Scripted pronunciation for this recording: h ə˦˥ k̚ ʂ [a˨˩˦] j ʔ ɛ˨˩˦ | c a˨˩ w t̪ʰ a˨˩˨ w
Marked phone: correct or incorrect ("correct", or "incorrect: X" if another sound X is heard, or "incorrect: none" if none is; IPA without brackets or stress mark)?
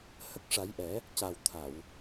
correct